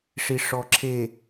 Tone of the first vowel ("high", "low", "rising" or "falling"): low